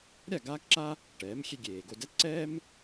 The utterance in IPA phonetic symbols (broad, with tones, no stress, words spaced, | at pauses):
ɾʲa˥˩ ɡaː˥kǁa˥ | ʈɛː˩˥mxʲe˧ ɡʲeː˩ɡo˥˩ dɛ˥t ǀɛː˥m